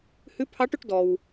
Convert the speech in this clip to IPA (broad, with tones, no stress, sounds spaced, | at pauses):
h ʉ˧˥ pʰ ɑ˧˥ ʈ ɵ˧ ʈ d ɔ˩ w